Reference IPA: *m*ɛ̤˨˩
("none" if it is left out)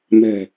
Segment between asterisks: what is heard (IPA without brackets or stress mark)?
m